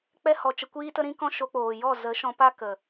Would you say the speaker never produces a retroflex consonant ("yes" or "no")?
yes